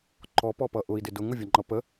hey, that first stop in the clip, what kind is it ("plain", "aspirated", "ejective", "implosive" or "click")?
click